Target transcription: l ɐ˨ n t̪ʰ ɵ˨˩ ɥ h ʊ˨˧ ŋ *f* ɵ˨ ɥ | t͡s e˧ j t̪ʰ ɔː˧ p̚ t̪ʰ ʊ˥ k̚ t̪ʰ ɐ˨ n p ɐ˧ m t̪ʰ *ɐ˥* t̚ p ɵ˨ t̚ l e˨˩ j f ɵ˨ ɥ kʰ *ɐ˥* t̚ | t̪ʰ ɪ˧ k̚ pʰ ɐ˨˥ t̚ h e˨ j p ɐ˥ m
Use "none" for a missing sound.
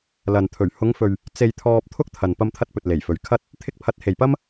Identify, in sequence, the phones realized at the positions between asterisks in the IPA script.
f, ɐ˧, ɐ˥

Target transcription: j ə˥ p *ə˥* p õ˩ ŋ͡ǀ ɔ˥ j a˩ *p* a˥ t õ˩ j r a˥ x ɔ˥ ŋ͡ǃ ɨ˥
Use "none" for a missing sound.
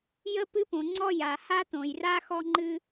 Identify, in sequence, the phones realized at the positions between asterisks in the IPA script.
ɨ˥, h

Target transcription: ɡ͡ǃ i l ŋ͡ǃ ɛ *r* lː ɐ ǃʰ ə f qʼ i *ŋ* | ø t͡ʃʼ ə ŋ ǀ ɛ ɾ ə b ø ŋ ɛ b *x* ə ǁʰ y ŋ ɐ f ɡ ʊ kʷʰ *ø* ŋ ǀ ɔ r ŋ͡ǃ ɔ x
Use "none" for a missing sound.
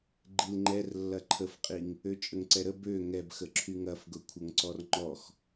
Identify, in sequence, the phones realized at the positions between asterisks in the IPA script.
r, ŋ, x, ə

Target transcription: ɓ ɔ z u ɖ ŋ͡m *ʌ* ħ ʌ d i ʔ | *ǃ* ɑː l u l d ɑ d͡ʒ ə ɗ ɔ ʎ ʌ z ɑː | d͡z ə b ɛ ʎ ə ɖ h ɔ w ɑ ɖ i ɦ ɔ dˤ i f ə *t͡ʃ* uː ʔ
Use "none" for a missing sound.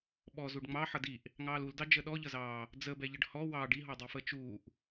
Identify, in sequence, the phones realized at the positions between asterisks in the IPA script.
ɑ, ŋ, t͡ʃ

